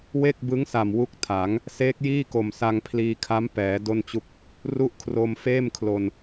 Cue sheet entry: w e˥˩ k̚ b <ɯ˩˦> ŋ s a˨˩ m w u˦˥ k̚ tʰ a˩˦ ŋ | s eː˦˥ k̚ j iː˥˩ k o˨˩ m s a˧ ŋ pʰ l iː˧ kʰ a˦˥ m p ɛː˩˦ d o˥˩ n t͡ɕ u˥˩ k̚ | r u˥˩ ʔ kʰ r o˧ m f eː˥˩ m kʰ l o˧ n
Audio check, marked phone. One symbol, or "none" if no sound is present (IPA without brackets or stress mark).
ɯ˦˥